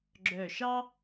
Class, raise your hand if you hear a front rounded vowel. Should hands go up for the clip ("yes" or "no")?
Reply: yes